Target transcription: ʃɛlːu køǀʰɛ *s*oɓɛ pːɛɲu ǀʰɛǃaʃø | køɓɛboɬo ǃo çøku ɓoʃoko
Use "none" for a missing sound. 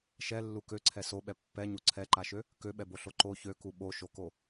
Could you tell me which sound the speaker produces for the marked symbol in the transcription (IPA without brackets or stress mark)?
s